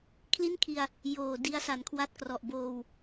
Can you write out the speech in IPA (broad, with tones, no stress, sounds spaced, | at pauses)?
kʰ l i˥˩ n kʰ i˧ a̯ | j oː˨˩ d i˧ a̯ s a˨˩ n kʰ w a˦˥ t̚ k r ɔ˨˩ ʔ b oː˧ w